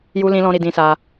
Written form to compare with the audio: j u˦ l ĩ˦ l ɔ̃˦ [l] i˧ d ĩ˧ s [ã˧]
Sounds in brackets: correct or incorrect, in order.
incorrect, incorrect

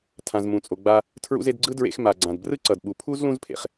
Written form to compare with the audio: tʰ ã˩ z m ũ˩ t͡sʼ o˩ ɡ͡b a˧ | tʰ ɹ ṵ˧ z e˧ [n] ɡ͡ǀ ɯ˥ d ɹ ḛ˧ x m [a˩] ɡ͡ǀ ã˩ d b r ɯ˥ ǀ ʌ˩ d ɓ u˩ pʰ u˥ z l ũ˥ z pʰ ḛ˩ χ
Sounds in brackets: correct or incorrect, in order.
incorrect, correct

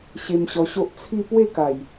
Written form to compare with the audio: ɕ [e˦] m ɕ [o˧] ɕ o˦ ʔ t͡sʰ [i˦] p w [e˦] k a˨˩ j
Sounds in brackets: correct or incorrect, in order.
incorrect, incorrect, incorrect, incorrect

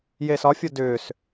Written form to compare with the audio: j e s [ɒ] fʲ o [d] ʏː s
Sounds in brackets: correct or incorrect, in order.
correct, correct

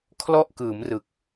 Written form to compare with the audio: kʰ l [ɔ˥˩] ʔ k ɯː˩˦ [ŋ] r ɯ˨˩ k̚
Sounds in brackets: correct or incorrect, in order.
correct, incorrect

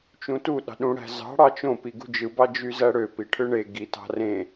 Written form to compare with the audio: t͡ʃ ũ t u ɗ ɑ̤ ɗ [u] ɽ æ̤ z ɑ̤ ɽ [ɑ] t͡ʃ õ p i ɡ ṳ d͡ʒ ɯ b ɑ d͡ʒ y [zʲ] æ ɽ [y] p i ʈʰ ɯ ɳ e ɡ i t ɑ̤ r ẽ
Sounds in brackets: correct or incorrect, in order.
incorrect, correct, incorrect, incorrect

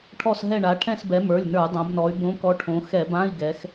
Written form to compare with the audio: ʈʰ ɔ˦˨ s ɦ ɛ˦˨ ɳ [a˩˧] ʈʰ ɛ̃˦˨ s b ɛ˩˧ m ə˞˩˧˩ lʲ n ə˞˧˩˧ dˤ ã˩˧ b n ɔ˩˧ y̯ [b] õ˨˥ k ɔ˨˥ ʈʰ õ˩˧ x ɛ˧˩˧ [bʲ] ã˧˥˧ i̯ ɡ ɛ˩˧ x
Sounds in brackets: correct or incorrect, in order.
correct, correct, incorrect

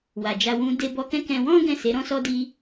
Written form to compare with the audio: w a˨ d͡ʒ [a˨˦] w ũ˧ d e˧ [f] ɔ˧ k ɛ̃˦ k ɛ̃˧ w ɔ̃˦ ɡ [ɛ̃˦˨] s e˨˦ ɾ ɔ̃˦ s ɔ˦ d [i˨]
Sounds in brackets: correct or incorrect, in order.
incorrect, incorrect, correct, incorrect

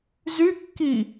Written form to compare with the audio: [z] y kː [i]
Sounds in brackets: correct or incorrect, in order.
correct, correct

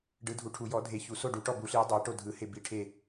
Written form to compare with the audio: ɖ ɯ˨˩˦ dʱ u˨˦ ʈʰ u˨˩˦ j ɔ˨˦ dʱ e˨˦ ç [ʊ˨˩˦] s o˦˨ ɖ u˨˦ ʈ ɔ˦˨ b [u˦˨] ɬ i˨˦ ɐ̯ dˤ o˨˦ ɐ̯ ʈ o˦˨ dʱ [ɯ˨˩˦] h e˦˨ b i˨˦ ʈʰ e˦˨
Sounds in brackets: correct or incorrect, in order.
incorrect, incorrect, correct

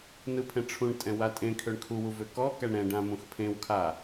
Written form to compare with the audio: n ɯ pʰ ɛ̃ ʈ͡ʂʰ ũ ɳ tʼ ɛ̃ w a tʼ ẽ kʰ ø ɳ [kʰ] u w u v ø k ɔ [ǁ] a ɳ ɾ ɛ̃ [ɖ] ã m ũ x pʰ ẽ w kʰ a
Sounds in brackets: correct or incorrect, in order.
correct, incorrect, correct

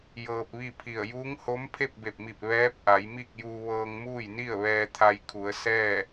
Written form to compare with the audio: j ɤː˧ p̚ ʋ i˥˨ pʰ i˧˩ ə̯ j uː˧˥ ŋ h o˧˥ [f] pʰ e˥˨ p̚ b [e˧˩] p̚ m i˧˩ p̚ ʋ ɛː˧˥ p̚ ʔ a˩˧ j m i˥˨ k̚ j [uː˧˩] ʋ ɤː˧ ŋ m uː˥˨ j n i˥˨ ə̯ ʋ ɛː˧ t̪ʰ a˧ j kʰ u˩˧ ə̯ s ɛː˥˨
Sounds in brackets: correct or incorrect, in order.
incorrect, correct, incorrect

